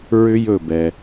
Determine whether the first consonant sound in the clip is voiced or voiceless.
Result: voiced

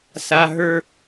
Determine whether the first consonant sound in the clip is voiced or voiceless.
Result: voiceless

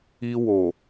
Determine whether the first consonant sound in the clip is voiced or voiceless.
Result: voiced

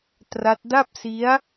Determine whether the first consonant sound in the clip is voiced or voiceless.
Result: voiceless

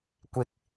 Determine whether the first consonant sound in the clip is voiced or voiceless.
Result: voiceless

